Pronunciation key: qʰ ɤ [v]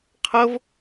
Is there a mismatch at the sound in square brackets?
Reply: no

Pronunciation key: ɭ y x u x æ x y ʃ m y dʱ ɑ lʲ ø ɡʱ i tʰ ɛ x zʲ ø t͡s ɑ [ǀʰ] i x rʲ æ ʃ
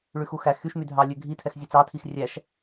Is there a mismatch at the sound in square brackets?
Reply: yes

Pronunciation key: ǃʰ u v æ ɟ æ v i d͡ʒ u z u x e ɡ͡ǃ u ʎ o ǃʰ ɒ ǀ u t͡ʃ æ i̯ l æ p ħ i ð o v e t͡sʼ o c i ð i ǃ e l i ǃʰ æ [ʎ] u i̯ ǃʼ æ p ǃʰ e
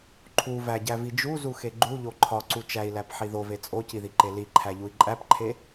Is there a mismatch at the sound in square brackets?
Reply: no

